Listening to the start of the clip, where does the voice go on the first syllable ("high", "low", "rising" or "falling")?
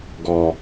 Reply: low